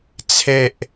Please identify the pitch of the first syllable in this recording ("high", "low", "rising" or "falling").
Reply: low